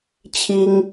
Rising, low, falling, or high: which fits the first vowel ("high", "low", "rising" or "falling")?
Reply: high